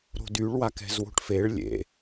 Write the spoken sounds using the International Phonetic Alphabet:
ɾ o̤ d y ɭ w a k ɛ̤ z w o̤ ʈ f e ɭ lʲ ḛ

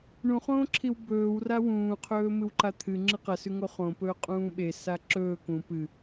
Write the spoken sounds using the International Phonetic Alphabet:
ɳ ũ χ õː ǁʰ i w b ɵː w r a w ũː qʰ ɵː m ɨ w ǃ a t̪ʰ ɨ ŋ͡ǁ ɨ q ɐ s ʉ ŋ o χ õ p ɵː qʼ ũː ɓ e s a ǁ ɵː k ũ p ɨ

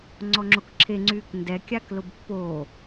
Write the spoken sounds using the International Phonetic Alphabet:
ŋ͡ǀ ɔ ŋ͡ǁ o k ǁʰ e ŋ͡ǀ yː k n d ɛ kʲ a k l ʊ b pː o

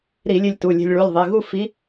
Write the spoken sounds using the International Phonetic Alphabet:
ɾ i˧˩˧ lʲ e˧ lʲ t u˩˧˩ lʲ e̤˧ lʲ ɭ u˩˧˩ lʲ ðˤ i˩˧˩ ɣ u˥˨ f i˧˥

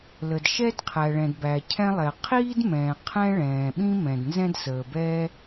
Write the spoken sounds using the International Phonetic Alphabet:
l ə˩ d ʃ ɛ˥ d qʰ æ˩ ɭ ɛ̃˩ d b æ˩ cʰ ɛ̃˥ lˠ ɛ˩ qʰ iː˥ d m ɛ̃ː˩ qʰ ɛ̃˥ ɭ ɛ̃ː˩ ɓ ĩ˥ m ɛ̃˩ d n z ɛ̃˥ d s əː˩ b ɛː˥

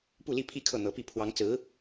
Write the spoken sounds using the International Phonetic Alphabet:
p u˥˧ l i˥˧ pʰ i˥˧ kʰ ɤ˥˩ n̪ ɤ˧˥ p i˥˩ pʰ w ɑ˧˥ ŋ t͡s ɹ̩˧˥

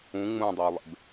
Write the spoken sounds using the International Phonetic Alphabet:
ũ ŋ͡m ũ dˤ ø ʊ̯ lˠ ḛ b

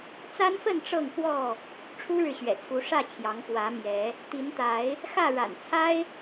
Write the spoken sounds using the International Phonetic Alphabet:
t͡s a˦ n f ə˥˨ n ʈ͡ʂ ɤ˥˨ ŋ f w ɔ˥˨ | ʈ͡ʂʰ u˦ ɻ ɻ̩˨ ɕ ɥ ɛ̰˨˩ t͡sʰ u˨˦ ʂ ä˥˨ t͡ɕʰ j ɑ˨˦ ŋ p w ä˨˦ m j ɛ˨˦ | t̪ i˨˦ n t̪ a˨˦ ɪ̯ | x ä˥˨ ɻ a̰˨˩ n t͡sʰ a˦ ɪ̯

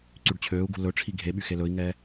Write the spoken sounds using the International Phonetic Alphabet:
ǀ y ɖ t͡ɕʰ øː u̯ ɡ ṳ l ɵ ʈ͡ʂʰ i ɡʱ e ɓ y x e l ɵ i̯ ŋ ɛː

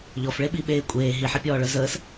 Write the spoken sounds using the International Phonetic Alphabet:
ʎ ɔ f ɭ e ɓ i ɓ eː kʷʼ eː ɦ i ħ i pʲ ɔː ɭ œ z əː s

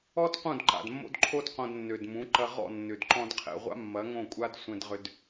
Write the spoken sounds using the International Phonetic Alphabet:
ɔ˦ d q ũ˦˨ d ǃ a̰˨ d mː o̰˦ d ǃʰ o˦ d q õ˧ d nː ø˨ d m ũ˨˦ ǃ ɐ˧ ʁ ɔ̰˦˨ nː ʏ˨ d ǃ ɔ̃˧ d qʰ ɛ̰˨ ʁʷ a̰˦ mː ɐ˨˦ ŋ õ˦˨ kʷʼ a˦ d sʷ ɛ̃˧ d ʁ ʏ˧ d

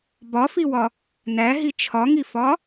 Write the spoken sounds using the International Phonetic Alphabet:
b ɒ f i w ɒ | n æ ɦ i t͡ʃʰ ɒ ŋ i f ɒ

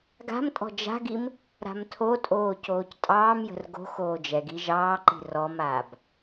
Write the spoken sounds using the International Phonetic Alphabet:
ɡ a̤ m tʼ ɔ̤ d͡ʒ a̤ ɡ i m | ɾ a̤ m tʰ o tʼ oː c oː c tʼ ɑː m j ə̤ r ɡ o̤ x oː d͡ʒ ɛ ɡ i ʒ ɑː ǃ i̤ r ɔ m aː b

